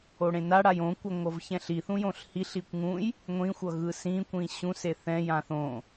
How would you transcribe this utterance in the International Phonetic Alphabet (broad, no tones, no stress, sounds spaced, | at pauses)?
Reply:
o ɽ ẽ n a ɽ a j õ kʷ ʌ ŋʷ ʌ v ç ɛ̃ ɬ i θ ũ j õ ɬ h i ɬ i kʷ ŋ ũ j | ŋʷ ĩ xʷ ʌ ɣ ɯ s ĩ kʷ ĩ ɕ ũ s e θ ɛ̃ j ã θ õ